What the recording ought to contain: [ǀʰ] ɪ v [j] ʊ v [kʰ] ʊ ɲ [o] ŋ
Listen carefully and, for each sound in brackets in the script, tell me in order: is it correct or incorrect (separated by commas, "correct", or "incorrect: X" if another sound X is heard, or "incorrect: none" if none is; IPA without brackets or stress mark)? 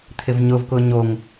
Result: incorrect: t̪ʰ, incorrect: ɲ, incorrect: k, correct